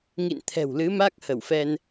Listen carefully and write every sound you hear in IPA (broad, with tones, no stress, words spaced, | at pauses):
ŋḭ˧˨nt̪ʰɛ̤˨˩wlɨ˨˦ ma˦˥k̚hə˧˩wfɛ˧n